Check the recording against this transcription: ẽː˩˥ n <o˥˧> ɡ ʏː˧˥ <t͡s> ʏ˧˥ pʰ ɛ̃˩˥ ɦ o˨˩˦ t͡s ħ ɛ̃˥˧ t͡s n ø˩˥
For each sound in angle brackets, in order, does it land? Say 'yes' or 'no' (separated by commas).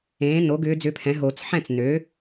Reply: no, no